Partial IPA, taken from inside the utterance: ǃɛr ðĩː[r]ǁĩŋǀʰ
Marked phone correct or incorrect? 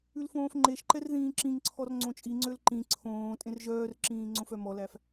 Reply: incorrect